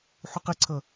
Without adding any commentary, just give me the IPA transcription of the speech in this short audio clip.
ħ u q ɪ ǀʰ ʌ

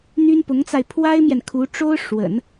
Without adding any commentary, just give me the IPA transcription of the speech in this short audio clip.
n̪ y˥ n p ʊ˧˥ ŋ t͡s a˧ ɪ̯ pʰ w a˥ ɪ̯ m j ɛ˨ n kʰ u˧˥ ʈ͡ʂ o˥ ʊ̯ ʂ w ə̰˨˩˦ n

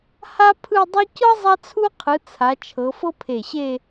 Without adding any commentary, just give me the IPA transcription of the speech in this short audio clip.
h a˥ pʰ ɯ˥˧ dˤ ɯ˥ c ɤ˥ zˤ a˥ t͡sʰ u˥ qʰ ɯ˨˦ t͡sʰ a˨˦ t͡ʃʰ ɤ˨˦ f ɤ˥ pʰ e˧˩ ɕ e˥˧

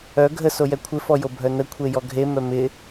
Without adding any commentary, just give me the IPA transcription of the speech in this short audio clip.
œ ɡʱ ə s o j ɛ kʷʰ ɪ f ɔ j o bʱ œ n ə kʷʰ e j ɔ ɡʱ e m œ m ɪ

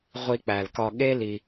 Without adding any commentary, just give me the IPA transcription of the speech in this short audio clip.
ʁʷ i˧ k͡p æ˨ l k ɒ˧ ɠ e˦ l i˧

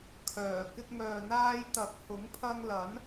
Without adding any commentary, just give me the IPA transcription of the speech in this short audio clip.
kʰ œː˨˩ k ɪ˧ k̚ ŋ œː˨ n̪ aː˧ j t̪ ɐ˨˥ k̚ h ʊ˨˥ ŋ pʰ ɐ˧ ŋ l ɐ˨˥ n

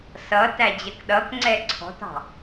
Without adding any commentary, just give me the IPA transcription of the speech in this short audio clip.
s ʌ t æ d͡ʑ ɜ k ɗ ʌ k ŋ͡ǀ ɛ ǀʰ ɔ̤ t ɑ̤

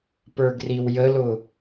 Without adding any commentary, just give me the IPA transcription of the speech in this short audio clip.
p ə˞ ɡ r i w j ə l ʊ

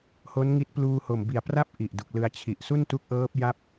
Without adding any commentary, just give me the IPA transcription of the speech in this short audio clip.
h o˦˥ n ŋ i˦˥ t̚ p l uː˧ h o˨˩ m b i˨˩ a̯ p r a˥˩ p̚ ʔ i˨˩ ʔ d u˨˩ k̚ l ɯ˧ a̯ t͡ɕʰ i˨˩ ʔ s u˥˩ n t u˦˥ k̚ ʔ ɤː˦˥ p̚ j a˥˩ p̚

